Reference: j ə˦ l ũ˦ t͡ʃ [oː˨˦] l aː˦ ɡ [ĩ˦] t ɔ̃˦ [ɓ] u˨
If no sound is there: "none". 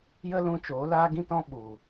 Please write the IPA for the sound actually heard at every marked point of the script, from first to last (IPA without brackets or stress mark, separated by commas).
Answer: oː˨˦, ĩ˦, ɓ